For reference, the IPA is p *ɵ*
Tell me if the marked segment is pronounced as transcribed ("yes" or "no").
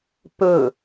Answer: yes